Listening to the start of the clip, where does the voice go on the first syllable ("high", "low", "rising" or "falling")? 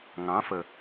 rising